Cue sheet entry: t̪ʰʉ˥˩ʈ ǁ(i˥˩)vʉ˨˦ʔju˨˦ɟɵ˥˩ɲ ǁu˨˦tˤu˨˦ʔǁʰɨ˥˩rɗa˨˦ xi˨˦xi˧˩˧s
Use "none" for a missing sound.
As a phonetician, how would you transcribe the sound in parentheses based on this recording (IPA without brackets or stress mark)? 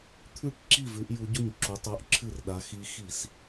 i˥˩